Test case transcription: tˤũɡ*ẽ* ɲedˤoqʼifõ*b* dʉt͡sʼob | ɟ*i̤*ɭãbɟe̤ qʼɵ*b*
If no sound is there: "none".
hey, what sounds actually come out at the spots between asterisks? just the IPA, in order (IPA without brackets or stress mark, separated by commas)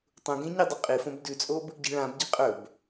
ẽ, b, i̤, b